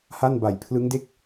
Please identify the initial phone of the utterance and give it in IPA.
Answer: h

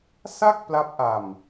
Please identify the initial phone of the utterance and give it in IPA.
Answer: s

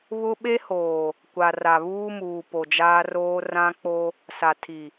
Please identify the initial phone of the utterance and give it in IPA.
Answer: β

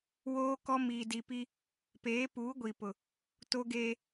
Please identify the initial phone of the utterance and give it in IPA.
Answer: w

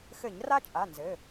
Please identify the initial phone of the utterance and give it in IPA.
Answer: x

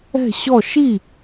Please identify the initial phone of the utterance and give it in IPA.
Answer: ɛ̤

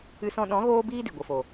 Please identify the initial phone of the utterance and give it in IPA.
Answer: ɨ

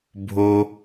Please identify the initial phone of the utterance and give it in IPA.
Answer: bʱ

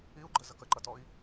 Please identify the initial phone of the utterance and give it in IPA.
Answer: i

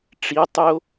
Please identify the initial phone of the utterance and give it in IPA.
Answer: ʈ͡ʂ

